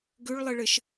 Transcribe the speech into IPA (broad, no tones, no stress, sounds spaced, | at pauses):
ɡ ʉ ɭ lˠ ɨ ɭ ɨ ʃ